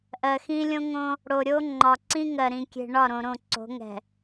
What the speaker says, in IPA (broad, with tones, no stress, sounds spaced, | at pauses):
ʔ ɜ˨ x ĩ˦ lʲ õ˦ ŋ õ˦ | ɽ o˨ ɾʲ o˦ ŋ͡ǃ ɒ˨ ǀ ĩ˦ ŋ ɜ˨ ɾ ĩ˨ kʲ e̤˨ ɳ ɒ˦˨ ɾ õ˨ ɾ õ˦˨ ǀ o̤˨˦ ŋ ɛ̤˨